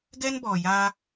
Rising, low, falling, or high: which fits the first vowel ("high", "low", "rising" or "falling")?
high